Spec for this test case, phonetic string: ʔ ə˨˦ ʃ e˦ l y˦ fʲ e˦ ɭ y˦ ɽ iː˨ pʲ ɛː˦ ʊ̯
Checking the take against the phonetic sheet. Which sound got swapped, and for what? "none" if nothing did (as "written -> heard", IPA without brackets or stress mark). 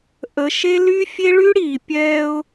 none